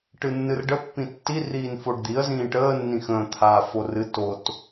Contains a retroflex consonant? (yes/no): yes